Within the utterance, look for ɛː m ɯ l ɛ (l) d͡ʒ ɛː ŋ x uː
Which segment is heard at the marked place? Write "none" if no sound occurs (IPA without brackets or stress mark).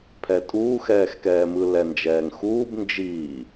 n